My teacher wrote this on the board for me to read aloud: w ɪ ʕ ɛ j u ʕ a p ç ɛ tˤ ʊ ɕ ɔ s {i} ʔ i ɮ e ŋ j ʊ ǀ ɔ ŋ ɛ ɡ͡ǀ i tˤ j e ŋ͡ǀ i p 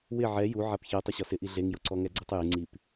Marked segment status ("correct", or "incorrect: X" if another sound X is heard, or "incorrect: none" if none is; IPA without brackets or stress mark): incorrect: ɪ